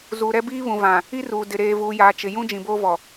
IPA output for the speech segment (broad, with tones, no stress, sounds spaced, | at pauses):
z uː˨ ɾ ɛ˦ b iː˦ β ũ˨ v ã˨ | i˦ r uː˨ d ɪ˨ ɾ eː˨ v uː˨ j aː˨ t͡ʃ ɪ˨ j ũ˦ d͡ʒ ĩ˨ b oː˦ v ɔ˨